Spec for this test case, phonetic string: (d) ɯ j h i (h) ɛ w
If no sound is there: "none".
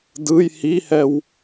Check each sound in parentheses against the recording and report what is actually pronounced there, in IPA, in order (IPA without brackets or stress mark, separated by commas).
d, h